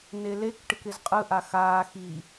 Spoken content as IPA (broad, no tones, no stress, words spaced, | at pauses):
nelek ʈɪkɪzqʼɯ ʔaxaː xi